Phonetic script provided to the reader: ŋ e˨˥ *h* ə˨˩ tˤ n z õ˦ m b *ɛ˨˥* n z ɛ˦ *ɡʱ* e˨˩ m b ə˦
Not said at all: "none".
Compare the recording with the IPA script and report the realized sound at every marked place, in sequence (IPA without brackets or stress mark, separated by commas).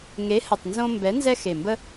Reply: h, ɛ˨˥, x